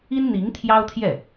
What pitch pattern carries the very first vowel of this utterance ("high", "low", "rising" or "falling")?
high